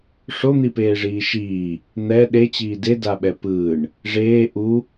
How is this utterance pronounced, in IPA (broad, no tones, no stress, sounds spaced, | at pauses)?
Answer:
ʂ o n̪ i p eː ʐ iː ʃ iː | n̪ ɛ ɗ e t͡ɕ iː d e d a ɓ ɛ p ɯː ɳ | ʐ eː ʔ u